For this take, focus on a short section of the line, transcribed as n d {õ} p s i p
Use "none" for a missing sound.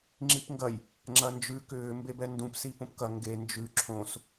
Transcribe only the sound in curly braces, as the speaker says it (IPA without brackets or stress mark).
ũ